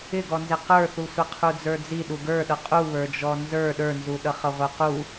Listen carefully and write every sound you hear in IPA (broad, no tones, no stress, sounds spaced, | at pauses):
ɪ ɡ ɔ n z ɪ q ə˞ θ u sʷ ɪ qʰ u d͡z ə˞ d͡z i ɗ u ɡ ə˞ ɗ ʌ qʼ u β ə˞ d͡ʒ ɔ n z ə˞ ɗ ə˞ n z u ɗ ʌ χ ʌ ʁʷ ə˞ q u